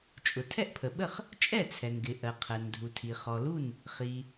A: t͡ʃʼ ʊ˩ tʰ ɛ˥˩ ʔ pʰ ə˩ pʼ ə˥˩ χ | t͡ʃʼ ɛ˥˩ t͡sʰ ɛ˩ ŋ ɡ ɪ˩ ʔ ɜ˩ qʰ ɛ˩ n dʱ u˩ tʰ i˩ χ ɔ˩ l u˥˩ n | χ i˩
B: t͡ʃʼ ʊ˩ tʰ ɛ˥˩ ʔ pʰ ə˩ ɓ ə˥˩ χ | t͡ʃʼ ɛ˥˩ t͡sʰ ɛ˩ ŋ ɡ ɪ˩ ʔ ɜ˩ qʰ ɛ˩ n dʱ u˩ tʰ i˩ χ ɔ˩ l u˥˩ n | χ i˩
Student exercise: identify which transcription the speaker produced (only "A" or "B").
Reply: B